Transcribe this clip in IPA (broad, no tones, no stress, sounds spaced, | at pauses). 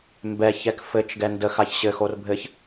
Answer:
m b ɛ ç ɛ k f ɘ t͡ʃ ɡ ɛ n d ə x a ç ɕ ɘ x o r bʱ ɘ ç